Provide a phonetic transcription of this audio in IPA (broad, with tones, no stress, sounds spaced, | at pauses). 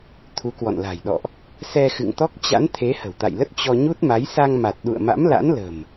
t̪ʰ u˨˦ k w ɔ̰˧˨ n l a̤˨˩ j ɗ ɔ̰˧˨ ʔ | s ɛ˧ x ɨ̰˧˨ ŋ t̪ ɔ˦˥ k̚ t͡ɕ a̰˧˥ n t̪ʰ e˨˦ h ə̤˨˩ w t̪ a̰˧˨ j l ə˦˥ t̚ t͡ɕ ɔ˧ ɲ u˦˥ t̚ m a˨˦ j s a˧ ŋ m a˨˩ t̚ ɗ ṵ˧˨ ə̯ m a̰˧˥ m l a̰˧˥ n l ə̤˨˩ m